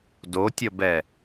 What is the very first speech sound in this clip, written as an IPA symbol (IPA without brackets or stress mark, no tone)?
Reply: d